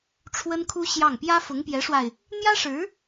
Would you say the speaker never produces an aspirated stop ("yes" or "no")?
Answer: no